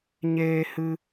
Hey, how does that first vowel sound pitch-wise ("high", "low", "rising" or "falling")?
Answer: high